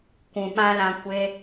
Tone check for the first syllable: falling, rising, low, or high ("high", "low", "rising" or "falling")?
low